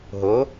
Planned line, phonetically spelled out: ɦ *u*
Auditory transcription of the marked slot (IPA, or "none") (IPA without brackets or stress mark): o